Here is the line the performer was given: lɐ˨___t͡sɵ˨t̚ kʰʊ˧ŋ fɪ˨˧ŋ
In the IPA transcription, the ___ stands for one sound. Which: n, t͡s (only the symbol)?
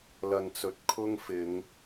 n